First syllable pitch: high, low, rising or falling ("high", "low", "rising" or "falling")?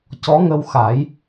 rising